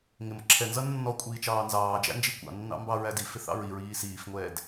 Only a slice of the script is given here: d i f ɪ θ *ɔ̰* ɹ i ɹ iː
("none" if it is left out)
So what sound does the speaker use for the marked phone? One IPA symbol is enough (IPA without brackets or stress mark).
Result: ɑ̰